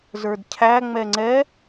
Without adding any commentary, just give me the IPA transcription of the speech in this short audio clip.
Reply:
z ə˞ d cʰ æ ŋ͡m ɛ ŋ͡ǀ ɛ

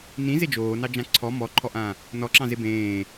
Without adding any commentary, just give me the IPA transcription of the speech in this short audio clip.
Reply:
n ĩ z e d͡ʒ oː n ɑ d͡ʒ ã ǀʰ ɔ m ɔ ǃʰ ɔ ʔ ã | n ɔ ǁ ɑ̃ z e b ẽː

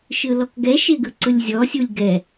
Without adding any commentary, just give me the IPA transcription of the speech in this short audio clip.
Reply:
ʃ ɯ l ɔ k ɡ ɛ ʃ e ɡ ɯ ǀ ɯ lʲ zʲ ɔ sʲ u lʲ ɡ ɛ

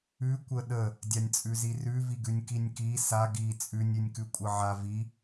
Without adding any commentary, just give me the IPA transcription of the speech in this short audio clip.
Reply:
ʉ kʷ ə ɗ ə | dʲ a nʲ t͡sʼ ʉ z i r ʉ v i ɡ ʉ nʲ k i nʲ k i s a ɡ i t͡sʼ ʉ nʲ ʉ nʲ k ʉ kʷʼ ə ʕ a v i

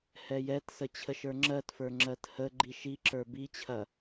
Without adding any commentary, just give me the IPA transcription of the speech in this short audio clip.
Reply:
h ɛ j ɛ t s ə t͡ɕʰ ə ʃ ə˞ ŋ͡ǁ ɜ t f ə˞ ŋ͡ǁ ɜ t h ə ɡ͡ǃ i ʃ i ǁ ə˞ b i t͡ɕʰ ɐ

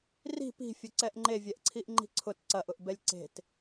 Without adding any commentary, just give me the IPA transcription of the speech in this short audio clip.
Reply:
r i̤ p i̤ fʲ ʊ ǀ ɛ ʔ ŋ͡ǃ e vʲ ɛ ʔ ǀʰ i ʔ ŋ͡ǃ i̤ ǀʰ ʊ t ǀ ɐ ʔ ʊ ʔ b ɛ lʲ ǀ e̤ t

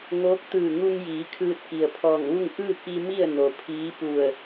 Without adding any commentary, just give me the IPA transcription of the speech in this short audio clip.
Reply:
ŋ oː˧˥ k̚ t̪ ɯː˧˩ ŋ u˧ ŋ j iː˩˧ kʰ ɯː˧ t̚ k i˩ ə̯ pʰ ɔː˧˩ ŋ ʋ u˥˨ ŋ ʔ ɯː˥˨ k i˧ m i˥˨ ə̯ n o˩ pʰ iː˧˥ p u˧˩ ə̯

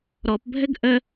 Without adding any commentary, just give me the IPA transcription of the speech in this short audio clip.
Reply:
ɾ ɔ p bʱ ɘ ɡ ʔ ə

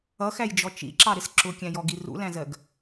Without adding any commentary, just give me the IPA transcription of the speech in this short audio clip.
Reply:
ʌ x æ j d͡ʒ ɔ t͡ʃ ḭ ǁ ɑ ɾ ɪ s ǁ ʊ kʲ æ̃ j ɔ ɡ i r ṵ l æ̃ z ɜ ɡ

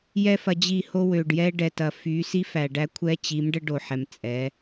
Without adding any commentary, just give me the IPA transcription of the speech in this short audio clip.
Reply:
j ɛ˦ f ɐ˧ d͡ʑ i˦˨ h o˦ w ø˨ ɖ j ɛ˧ ɖ ɛ˨ t ɐ˨ f y˨˦ s i˦ f æ˨ ɖ æ˦ kʷʰ ɛ˦ t͡ɕ i˨˦ m ɖ ə˦ ɖ o˨ ħ ɛ˨ m t͡sʼ ɛ˨˦

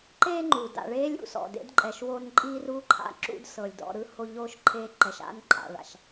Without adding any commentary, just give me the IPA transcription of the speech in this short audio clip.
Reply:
ǃ eː˦ ŋ͡ǃ u˩ d a̰˨ ɭ eː˥ lʲ ṵ˨ s ɔ̰˩ d ḛ˥ d ǃʼ ɛ˨ ʃ w o˦ n ǃʼ iː˥ r uː˥ ǃʰ a̰˦ ǁ ṵ˥ d s ɤ˩ lʲ d ɔ̰˨ ɾ ɯ˥ h o˦ ʎ oː˥ ʃ ǃʰ eː˦ ǃ ɛ˨ ʃ a̰˥ n ǃʼ a̰˨ ɭ a̰˩ ʃ

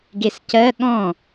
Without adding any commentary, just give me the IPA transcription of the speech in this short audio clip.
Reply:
ɡ e s c ɜ ɠ ɔ̃

